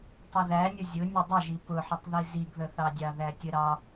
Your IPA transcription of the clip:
tˤ ʊ ð æ nʲ ʊ zʲ ʊ nʲ ʊ dˤ ə ʒ i p ʊ ħ ʊ tˤ ð i z i ɡ ð ə θ ɑ dʲ ɑ ð æ tʲ ə ɾ ɑ

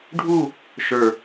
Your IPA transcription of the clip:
ɖʱ u | ʃ ə˞

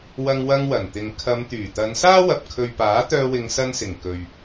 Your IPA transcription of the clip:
w ɐ˧ ŋ w ɐ˧ ŋ w ɐ˨˩ n t̪ ɪ˨ ŋ kʰ ɐ˨˧ m t̪ yː˨˩ t̪ ɐ˨˧ n s aː˥ w ɐ˨ p̚ kʰ ɵ˨ ɥ p aː˨˥ t̪ œː˧ w ɪ˨˧ ŋ s ɐ˧ n s ɪ˨˩ ŋ k ɵ˨ ɥ

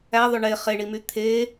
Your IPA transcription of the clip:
æ ðˤ ø ɳ e χ e ɳ i m y t̪ʰ e

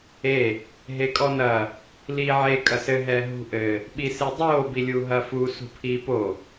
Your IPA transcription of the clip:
e | ɦ e kʼ ɔ n ɐ | l iː ʕ e kʼ ɐ s ɘ ɦ ɛː ɦ ṳ ʔ ɘ | ɓ i s e dˤ oː b i lʲ u ɦ ɐ f u s ṳ pʰ iː p o

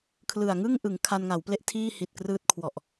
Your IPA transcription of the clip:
kʰ l ɯ˨˩ a̯ ŋ ɯ˥˩ ŋ ʔ ɯ˩˦ ŋ kʰ a˧ n ŋ a˩˦ w p l e˥˩ ʔ tʰ iː˥˩ h i˨˩ t̚ k r ɯː˦˥ t̚ kʰ w ɔ˨˩ ʔ

